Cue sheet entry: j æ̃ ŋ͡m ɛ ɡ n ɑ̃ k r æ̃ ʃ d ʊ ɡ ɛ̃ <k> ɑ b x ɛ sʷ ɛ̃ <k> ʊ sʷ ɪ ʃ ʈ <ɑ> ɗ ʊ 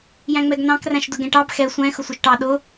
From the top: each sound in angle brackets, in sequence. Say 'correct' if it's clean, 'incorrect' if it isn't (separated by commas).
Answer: incorrect, incorrect, correct